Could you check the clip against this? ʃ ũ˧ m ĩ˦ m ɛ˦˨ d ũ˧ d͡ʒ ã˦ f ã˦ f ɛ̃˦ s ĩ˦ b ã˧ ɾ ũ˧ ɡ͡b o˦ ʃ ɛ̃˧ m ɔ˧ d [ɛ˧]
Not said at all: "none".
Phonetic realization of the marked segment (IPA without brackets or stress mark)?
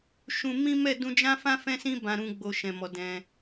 ɛ̃˧